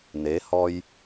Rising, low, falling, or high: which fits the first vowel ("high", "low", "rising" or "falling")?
rising